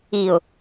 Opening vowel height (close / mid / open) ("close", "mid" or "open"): close